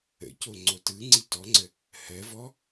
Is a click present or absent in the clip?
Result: present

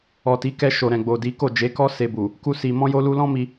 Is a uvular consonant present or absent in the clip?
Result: absent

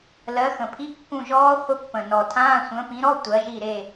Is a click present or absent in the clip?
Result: absent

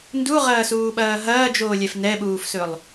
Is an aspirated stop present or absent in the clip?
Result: absent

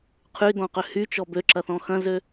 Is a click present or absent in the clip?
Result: present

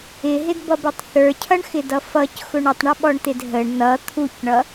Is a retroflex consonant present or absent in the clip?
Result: present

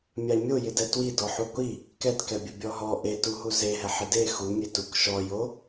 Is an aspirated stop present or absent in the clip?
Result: absent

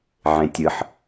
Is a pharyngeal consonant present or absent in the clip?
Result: present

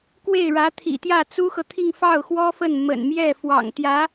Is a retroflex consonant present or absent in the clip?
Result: present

